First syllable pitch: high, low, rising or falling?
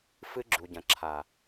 high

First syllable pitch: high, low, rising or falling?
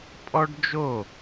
high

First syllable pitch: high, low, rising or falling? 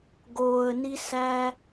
low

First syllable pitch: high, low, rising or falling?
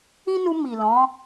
high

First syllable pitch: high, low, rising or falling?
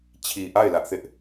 low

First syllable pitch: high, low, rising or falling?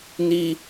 high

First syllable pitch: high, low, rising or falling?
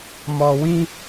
low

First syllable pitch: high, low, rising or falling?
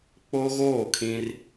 high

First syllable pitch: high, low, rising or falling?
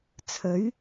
rising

